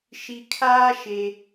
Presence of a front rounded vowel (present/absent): absent